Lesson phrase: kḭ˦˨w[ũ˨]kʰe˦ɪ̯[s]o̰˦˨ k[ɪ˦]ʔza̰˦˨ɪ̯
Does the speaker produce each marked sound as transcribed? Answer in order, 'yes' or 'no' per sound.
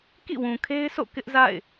yes, yes, yes

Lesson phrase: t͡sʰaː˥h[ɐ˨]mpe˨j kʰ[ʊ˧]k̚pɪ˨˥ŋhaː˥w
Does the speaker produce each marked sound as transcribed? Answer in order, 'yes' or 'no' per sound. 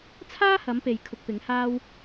no, yes

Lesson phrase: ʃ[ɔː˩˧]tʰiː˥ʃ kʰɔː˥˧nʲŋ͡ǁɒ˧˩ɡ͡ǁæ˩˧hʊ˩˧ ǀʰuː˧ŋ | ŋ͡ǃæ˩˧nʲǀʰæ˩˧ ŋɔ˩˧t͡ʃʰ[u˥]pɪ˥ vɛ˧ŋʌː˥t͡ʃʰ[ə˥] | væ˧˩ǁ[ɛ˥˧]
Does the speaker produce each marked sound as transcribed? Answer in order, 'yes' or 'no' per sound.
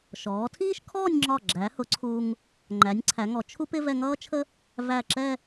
yes, yes, yes, yes

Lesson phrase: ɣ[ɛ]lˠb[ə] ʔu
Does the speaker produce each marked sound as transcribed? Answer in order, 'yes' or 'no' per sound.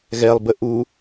yes, yes

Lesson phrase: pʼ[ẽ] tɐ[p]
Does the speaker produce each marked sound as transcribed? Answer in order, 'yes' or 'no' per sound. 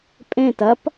yes, yes

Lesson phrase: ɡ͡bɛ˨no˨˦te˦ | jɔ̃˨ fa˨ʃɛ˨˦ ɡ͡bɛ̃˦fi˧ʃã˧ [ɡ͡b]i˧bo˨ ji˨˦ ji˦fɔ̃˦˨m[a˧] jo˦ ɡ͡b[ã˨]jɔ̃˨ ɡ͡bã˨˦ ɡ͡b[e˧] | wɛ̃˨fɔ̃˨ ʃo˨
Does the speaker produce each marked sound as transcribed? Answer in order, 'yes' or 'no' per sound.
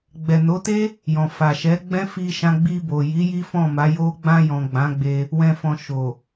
yes, no, no, yes

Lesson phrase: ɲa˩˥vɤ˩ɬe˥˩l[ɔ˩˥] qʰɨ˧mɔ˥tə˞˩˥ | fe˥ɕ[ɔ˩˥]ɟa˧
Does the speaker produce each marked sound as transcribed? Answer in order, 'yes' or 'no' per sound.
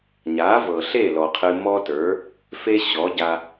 no, yes

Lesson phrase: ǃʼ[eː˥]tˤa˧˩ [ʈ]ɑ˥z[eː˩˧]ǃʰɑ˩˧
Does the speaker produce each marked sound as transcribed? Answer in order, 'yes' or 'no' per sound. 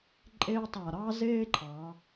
yes, no, no

